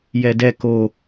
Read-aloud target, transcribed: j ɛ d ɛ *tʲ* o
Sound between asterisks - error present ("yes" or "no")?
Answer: yes